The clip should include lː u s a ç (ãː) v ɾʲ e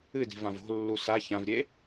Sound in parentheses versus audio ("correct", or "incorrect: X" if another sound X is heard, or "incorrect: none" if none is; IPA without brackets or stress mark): incorrect: ã